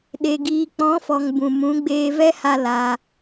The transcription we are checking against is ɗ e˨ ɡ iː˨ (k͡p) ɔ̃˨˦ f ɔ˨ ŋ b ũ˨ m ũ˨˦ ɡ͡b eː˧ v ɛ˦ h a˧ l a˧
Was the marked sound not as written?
no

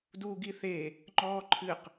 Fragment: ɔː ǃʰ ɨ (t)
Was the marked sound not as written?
yes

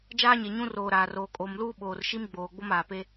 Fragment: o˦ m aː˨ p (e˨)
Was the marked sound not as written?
yes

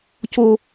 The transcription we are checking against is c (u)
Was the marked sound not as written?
yes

